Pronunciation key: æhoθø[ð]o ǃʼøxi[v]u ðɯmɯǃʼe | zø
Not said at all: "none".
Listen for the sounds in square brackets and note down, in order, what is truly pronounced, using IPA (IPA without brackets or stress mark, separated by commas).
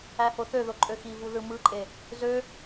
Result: ð, v